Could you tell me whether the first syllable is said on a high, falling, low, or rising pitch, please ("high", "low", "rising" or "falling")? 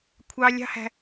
high